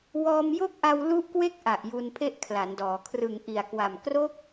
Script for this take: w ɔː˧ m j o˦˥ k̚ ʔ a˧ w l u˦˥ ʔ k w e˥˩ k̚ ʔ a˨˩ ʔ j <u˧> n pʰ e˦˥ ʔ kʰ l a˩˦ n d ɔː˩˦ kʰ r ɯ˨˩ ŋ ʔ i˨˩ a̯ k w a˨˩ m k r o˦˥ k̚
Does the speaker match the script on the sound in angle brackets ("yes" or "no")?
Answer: yes